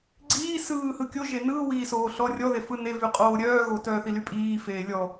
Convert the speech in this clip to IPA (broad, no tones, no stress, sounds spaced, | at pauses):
ɡ͡ǀ iː s ɯː h ɯ kʲ o ʒ e n ɯː w iː s oː ɬ ɔ rʲ ɔ ð e f ɯ n e v y qʼ oː ɾʲ œː ɣ o t œː θ i l y pʼ iː f eː lʲ ɔ